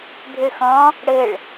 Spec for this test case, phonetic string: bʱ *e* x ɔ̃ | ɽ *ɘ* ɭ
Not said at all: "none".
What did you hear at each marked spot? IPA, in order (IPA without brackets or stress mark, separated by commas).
ø, ɘ